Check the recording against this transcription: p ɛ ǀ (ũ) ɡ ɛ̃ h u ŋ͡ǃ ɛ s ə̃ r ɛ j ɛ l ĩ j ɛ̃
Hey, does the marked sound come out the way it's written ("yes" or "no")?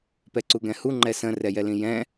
no